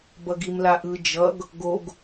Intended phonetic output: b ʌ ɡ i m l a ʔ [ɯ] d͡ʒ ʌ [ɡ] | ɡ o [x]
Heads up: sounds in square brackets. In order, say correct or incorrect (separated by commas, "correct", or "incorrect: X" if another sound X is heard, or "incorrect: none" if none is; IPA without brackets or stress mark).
correct, correct, incorrect: ɡ